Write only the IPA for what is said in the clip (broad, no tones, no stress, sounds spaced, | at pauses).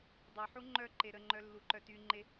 dˤ œ ħ u ŋ͡ǃ œ ǃ e ɾ ə ŋ͡ǃ œ lː u ǃ œ t y ŋ͡ǃ e